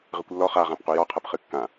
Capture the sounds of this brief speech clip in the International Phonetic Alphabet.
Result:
ʁ ɨ kʷ lː ɔ χ a ʁ ã p q u j ɔ qʰ ɐ p χ ɨ kː ã

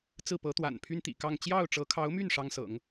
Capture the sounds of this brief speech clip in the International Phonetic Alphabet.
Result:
t͡s ɹ̩˥˩ p ɤ˧˥ t̪ w a̰˨˩ n pʰ y˥ n t̪ ḭ˨˩ k ɑ˥˧ ŋ t͡ɕ j ɑ˥˩ ʊ̯ ʈ͡ʂ ɤ˧˥ kʰ ɑ˧˥ ʊ̯ m y˥˩ n ʂ ɑ˥ ŋ s ɤ̰˨˩˦ ŋ

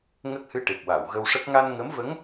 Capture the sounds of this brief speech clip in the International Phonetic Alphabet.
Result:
ŋ ə˦˥ k̚ h ɨ˧ ʈ e˨˩ p̚ w a˨˩˨ w ɣ ə˧ w ʂ ə˦˥ k̚ ŋ a˧ n ŋ ə˧˥ m v ə˧˥ ŋ

